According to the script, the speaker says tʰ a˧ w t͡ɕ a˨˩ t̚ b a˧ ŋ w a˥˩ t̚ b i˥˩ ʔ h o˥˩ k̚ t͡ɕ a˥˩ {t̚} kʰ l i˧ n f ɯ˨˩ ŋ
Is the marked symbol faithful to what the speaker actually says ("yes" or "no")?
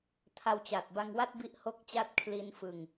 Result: yes